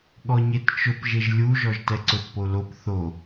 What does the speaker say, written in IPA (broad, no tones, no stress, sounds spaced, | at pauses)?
ɠ ɔ ɲ e t t͡ʃ ʊ p ʒ e ʒ lʲ u ʒ ɔ ʒ t ɛ ǀ ʊ t p o l o p θ o